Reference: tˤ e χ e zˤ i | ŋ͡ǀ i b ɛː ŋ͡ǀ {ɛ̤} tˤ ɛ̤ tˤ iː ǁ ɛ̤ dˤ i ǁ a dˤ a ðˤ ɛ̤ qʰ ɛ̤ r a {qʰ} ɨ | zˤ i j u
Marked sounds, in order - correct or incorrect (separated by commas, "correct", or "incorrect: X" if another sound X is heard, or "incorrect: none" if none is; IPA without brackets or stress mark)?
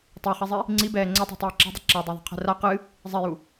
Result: incorrect: ɛ, incorrect: q